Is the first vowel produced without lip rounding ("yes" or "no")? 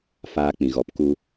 yes